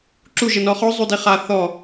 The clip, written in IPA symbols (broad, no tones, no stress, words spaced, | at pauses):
ǁuʒənɔ χɔzˤudi χa θɔ